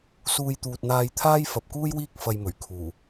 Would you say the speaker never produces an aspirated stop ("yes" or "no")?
no